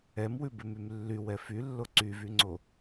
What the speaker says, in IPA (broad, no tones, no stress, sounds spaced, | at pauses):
ɛ m w ʉ b ʉ m y m lː y w ɛ f y lː o ǀ y v y ŋ͡ǀ o